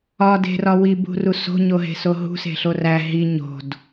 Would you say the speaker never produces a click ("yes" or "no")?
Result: yes